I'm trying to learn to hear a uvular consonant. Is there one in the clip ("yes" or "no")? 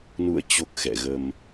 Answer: no